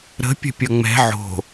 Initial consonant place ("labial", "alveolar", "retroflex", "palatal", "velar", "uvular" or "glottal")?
alveolar